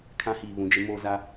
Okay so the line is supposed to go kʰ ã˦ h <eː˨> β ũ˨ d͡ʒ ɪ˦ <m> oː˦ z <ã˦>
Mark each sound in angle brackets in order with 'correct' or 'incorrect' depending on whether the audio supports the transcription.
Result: incorrect, correct, incorrect

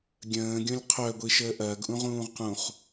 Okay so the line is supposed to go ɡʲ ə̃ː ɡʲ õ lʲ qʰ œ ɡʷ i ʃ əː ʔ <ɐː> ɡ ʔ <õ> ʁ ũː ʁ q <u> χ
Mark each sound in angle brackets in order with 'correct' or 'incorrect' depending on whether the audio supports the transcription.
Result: correct, incorrect, incorrect

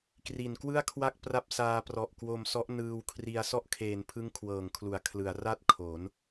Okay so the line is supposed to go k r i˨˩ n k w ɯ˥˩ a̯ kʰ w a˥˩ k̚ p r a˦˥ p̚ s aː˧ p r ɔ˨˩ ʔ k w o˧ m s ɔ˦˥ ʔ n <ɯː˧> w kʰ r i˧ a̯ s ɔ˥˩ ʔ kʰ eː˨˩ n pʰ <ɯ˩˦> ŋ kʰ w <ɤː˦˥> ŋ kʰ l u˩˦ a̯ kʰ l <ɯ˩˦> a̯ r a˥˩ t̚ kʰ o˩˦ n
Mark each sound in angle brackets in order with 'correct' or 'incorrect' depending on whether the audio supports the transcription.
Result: correct, incorrect, incorrect, correct

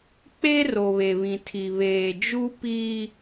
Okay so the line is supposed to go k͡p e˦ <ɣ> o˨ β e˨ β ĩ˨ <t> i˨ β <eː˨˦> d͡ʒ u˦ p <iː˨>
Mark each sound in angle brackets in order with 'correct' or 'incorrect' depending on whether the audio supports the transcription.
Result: incorrect, incorrect, incorrect, incorrect

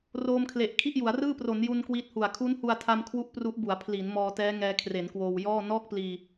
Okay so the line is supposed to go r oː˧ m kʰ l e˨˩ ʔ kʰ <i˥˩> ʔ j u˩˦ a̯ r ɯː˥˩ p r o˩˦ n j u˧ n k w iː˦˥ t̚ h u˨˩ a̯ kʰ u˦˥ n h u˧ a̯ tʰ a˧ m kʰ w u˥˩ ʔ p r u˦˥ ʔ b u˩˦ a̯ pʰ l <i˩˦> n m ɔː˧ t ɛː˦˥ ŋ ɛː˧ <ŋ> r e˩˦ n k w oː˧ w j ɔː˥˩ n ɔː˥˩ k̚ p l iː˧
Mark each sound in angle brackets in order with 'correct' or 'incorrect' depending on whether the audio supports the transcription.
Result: correct, correct, incorrect

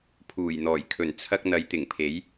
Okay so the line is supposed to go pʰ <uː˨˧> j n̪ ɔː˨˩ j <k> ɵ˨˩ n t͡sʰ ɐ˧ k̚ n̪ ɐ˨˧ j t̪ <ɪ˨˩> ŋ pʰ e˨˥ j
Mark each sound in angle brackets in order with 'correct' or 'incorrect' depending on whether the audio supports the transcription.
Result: incorrect, incorrect, correct

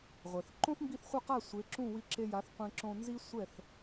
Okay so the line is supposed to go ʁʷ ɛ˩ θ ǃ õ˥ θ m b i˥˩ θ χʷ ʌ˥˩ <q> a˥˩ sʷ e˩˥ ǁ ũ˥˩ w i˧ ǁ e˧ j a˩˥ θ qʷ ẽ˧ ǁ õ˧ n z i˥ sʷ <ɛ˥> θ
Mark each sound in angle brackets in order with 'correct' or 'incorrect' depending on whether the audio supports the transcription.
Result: correct, incorrect

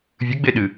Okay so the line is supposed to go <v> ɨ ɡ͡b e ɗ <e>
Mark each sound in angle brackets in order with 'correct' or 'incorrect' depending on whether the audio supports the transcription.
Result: incorrect, incorrect

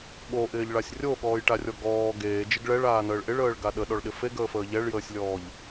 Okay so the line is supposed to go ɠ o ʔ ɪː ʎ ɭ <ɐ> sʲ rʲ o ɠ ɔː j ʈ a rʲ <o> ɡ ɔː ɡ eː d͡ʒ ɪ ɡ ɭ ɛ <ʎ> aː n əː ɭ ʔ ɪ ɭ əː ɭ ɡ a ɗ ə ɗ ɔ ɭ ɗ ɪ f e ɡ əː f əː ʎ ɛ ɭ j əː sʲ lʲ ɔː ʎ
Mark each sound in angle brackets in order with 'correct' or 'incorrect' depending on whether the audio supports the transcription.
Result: incorrect, incorrect, incorrect

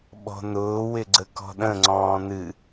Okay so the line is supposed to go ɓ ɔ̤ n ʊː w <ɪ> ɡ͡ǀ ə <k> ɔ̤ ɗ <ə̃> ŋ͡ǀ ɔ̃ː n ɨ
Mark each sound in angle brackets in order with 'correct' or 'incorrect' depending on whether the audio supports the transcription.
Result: correct, correct, correct

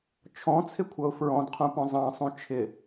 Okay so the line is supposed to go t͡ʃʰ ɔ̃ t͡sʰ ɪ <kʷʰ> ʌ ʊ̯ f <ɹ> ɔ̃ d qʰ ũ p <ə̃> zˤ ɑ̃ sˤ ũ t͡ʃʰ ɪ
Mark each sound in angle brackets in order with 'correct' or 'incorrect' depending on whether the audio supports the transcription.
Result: correct, correct, incorrect

